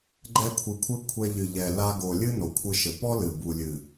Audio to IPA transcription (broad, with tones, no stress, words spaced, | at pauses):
ɡ͡ǃɛ˦kʷʰɨ˧kʷʰɘ˦ kʷʰɛ˧ʎɨ˨ʎɛ˨ la˧ɡo˨ lʲɨ˦no˨kʷʰɨ˧ʃɘ˨ pɔ˦lɨ˨ bu˨lʲɨ˨